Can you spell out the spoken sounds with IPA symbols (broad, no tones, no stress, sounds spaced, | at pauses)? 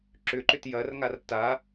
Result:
ǁ ʏ ǃ ʏ t j ɐ r ŋ a r t a